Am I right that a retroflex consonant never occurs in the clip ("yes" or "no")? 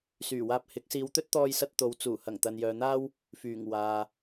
yes